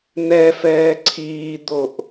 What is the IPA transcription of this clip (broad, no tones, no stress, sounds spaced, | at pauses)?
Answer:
n̪ ɛ f ɛː ǀʰ iː d̪ o ʔ